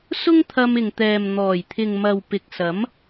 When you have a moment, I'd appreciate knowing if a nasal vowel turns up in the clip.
no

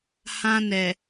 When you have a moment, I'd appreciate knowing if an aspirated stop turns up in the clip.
no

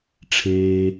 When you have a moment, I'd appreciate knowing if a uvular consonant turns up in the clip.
no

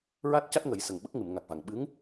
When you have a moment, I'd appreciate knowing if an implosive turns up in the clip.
yes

